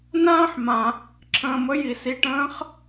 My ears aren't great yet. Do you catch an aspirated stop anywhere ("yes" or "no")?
yes